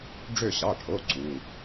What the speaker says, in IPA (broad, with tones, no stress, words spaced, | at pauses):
ɖ͡ʐø˦˨ɕɑ˩˧˩ʈʰo˩˧˩ ǀu˩˧˩